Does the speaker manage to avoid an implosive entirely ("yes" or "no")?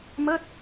yes